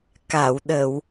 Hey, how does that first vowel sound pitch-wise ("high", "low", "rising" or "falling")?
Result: low